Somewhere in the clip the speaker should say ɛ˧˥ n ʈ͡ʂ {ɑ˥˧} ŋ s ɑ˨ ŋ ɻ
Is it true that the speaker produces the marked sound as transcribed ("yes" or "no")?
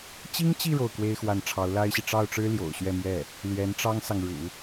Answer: no